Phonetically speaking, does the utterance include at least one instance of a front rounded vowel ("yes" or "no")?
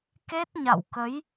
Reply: no